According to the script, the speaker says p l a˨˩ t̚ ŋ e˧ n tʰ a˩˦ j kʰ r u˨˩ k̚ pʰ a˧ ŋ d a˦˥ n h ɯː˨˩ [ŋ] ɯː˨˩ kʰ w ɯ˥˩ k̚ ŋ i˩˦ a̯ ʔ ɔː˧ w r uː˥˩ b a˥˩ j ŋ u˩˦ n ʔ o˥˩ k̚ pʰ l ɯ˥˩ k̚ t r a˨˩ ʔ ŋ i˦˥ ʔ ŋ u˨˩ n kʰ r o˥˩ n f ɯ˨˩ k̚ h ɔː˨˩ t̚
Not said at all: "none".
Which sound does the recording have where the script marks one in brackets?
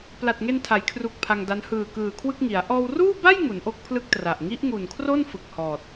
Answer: k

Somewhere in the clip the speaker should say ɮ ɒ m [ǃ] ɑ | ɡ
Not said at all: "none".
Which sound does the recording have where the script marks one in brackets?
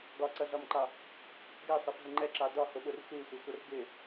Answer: ǃ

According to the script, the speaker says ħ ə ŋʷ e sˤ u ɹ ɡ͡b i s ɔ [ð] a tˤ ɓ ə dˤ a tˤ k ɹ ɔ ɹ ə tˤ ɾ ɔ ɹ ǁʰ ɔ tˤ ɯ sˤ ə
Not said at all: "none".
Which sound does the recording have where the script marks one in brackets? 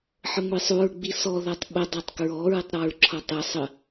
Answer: ð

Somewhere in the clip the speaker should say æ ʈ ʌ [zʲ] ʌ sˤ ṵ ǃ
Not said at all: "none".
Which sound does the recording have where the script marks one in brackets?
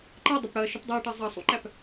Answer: zˤ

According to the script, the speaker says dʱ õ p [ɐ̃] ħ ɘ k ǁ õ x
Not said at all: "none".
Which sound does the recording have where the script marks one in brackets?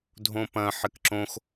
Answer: ɐ̃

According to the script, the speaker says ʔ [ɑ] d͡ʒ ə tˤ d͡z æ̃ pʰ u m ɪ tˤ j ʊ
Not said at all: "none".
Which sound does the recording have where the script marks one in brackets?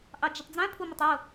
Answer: ɑ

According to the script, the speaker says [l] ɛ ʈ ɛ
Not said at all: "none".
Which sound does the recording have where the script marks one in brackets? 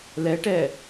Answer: l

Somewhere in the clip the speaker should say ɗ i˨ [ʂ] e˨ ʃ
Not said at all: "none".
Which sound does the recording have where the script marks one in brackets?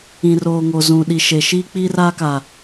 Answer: ʃ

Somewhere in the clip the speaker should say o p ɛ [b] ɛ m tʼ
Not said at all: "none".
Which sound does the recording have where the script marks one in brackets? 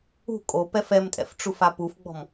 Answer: f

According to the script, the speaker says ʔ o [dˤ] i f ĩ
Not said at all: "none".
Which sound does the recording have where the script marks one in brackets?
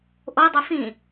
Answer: dˤ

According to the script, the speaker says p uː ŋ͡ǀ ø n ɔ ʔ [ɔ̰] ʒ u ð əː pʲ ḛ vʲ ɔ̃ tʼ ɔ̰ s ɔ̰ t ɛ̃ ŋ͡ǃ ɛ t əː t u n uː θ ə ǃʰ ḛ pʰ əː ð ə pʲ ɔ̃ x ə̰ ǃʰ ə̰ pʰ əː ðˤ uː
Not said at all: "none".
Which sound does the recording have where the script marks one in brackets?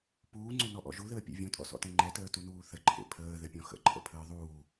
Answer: ɔ̰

